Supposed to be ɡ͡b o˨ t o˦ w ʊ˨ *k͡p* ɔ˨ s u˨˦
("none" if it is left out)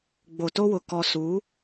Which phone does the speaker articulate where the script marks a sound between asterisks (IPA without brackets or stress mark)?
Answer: k